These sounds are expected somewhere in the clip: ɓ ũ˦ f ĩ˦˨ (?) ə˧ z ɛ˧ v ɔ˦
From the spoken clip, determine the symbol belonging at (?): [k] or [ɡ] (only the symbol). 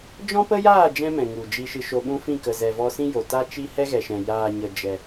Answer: k